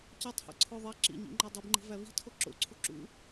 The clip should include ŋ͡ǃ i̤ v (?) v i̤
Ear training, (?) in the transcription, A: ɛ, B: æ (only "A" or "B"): B